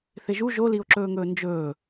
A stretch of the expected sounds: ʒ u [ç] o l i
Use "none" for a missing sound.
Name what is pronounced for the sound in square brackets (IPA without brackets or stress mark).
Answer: ʒ